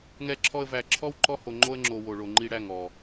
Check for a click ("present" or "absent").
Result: present